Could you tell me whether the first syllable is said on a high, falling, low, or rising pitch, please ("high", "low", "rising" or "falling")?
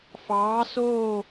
rising